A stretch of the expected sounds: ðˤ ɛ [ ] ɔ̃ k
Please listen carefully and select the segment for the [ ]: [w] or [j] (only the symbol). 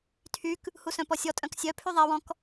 w